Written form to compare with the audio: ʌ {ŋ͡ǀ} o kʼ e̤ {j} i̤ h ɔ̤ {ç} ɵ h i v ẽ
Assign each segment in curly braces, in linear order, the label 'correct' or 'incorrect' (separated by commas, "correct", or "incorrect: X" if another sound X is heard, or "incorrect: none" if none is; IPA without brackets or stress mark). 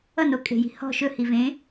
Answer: incorrect: n, correct, incorrect: ʃ